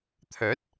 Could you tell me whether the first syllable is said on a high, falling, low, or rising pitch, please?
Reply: rising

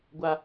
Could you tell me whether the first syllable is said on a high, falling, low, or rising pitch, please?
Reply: high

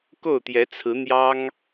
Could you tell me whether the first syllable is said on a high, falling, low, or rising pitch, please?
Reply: falling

